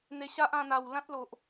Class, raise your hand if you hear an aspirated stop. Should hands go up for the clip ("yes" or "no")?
no